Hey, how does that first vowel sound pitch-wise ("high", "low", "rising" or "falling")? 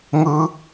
high